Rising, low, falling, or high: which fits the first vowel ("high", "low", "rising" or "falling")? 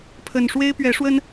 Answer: low